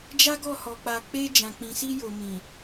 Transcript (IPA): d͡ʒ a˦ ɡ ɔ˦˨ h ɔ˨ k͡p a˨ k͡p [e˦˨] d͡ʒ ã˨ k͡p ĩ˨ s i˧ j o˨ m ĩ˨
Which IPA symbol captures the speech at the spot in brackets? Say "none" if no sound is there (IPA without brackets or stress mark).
e˧